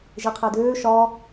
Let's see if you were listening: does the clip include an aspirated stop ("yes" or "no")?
yes